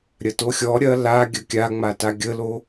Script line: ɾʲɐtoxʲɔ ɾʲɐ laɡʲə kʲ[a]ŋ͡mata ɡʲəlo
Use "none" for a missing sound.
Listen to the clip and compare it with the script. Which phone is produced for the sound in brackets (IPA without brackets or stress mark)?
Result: a